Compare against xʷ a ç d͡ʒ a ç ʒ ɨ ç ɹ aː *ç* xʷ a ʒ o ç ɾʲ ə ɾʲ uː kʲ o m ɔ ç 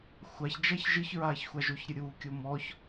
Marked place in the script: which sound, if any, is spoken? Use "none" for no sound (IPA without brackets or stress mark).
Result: ç